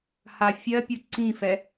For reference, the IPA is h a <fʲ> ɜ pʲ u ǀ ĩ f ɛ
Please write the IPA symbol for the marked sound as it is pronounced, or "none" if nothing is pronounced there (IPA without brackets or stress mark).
fʲ